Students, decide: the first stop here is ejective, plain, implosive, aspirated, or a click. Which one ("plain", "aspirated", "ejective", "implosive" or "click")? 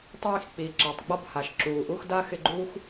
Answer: plain